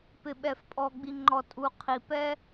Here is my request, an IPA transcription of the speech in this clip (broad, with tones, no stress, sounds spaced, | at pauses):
p ɪ˨ ɓ ɛ˨ f pʼ ɔ˨ ɡ͡b i˨ ŋ͡ǃ ɔ˨ tʼ u˨ qʰ i˨ p ɛ˦